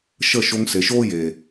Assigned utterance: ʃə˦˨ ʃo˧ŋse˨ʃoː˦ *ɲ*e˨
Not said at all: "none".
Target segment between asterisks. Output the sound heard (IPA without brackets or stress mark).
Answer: j